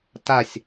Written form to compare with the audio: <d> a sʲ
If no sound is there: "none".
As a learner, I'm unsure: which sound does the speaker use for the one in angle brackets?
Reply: t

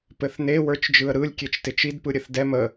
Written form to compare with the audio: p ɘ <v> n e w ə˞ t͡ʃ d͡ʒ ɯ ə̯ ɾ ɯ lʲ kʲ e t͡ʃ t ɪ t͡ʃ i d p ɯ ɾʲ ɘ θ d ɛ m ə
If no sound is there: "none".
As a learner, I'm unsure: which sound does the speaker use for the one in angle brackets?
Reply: θ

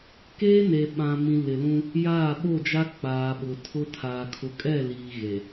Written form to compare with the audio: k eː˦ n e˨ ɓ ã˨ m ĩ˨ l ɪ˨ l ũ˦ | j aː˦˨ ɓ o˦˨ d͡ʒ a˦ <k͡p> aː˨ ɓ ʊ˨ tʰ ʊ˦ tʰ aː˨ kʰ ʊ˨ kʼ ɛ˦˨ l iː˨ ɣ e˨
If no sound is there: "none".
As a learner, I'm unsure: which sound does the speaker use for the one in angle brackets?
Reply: k͡p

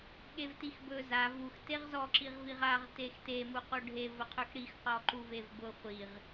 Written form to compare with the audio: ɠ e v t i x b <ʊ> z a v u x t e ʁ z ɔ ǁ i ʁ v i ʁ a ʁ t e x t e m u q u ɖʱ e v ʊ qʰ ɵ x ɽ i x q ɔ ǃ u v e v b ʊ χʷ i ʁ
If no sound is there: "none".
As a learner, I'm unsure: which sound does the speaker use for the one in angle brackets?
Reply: ɵ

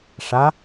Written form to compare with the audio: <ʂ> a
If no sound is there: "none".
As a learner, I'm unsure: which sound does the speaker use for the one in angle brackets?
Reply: ʂ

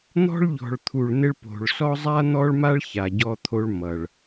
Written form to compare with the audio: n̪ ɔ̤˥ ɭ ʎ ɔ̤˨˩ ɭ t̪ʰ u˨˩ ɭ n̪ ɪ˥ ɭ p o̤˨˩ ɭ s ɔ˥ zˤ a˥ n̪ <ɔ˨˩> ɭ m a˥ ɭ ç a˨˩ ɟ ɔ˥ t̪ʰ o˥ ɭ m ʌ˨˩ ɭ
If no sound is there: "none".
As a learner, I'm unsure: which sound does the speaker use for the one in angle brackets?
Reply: ɔ˥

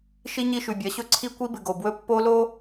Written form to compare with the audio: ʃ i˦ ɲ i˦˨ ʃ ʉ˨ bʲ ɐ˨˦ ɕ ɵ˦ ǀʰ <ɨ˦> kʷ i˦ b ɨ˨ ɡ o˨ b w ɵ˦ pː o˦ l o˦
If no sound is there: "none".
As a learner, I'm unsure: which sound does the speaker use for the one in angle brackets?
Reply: i˦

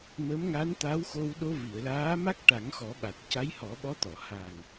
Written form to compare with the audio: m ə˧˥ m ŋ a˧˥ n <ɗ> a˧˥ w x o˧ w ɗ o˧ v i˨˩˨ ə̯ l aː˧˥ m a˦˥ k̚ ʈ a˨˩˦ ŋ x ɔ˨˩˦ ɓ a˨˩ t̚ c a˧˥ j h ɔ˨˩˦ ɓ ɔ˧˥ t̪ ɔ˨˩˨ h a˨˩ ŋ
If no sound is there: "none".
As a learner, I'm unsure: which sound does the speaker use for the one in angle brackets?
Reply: t̪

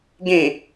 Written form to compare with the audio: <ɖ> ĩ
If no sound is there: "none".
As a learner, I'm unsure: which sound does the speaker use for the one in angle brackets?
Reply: ɡ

